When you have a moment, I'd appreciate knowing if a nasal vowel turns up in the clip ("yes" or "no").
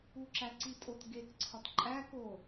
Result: no